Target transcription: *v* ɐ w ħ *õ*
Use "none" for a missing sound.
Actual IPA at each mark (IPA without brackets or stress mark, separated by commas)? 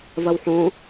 v, õ